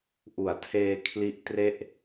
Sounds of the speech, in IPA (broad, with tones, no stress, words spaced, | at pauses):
ʔu˩˦a̯tʰeː˧ kʰli˦˥ʔtre˥˩ʔ